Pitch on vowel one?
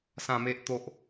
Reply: low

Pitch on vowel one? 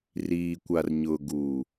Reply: low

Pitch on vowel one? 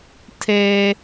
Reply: low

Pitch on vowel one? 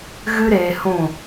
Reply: high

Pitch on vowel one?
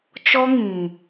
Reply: high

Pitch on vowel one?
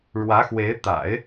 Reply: rising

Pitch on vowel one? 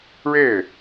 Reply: falling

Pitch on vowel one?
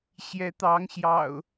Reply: rising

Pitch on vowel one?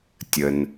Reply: low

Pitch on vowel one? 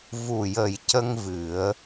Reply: low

